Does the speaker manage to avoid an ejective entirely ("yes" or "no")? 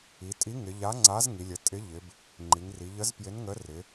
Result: no